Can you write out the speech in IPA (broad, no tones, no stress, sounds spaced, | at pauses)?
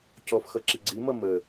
c ɔ f x ʌ ǁ i ɡ͡ǀ i m ʌ m ə